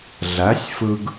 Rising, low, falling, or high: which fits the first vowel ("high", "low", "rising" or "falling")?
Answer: rising